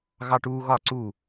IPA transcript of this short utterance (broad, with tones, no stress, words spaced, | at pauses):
ɣɑ˦ʈuː˦ɣɒ˦˨ǀu˦˨